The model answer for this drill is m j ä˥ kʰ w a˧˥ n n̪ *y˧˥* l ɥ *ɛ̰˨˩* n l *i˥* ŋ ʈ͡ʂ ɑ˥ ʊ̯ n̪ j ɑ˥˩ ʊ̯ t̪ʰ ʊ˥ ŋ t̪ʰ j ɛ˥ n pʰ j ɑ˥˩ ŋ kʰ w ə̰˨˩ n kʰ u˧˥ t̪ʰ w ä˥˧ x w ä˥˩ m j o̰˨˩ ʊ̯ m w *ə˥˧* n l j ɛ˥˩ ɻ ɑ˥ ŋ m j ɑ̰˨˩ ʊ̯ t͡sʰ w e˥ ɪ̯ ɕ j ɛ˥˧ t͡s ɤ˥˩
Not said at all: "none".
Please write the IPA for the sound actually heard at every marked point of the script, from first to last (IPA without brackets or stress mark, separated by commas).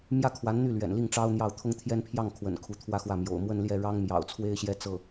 y˥˩, ɛ̰˨˩, i˥˩, ə˥˧